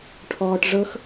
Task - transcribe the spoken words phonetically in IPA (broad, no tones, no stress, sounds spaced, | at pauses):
ʈʰ ɔː ʈ ʐ ɤ x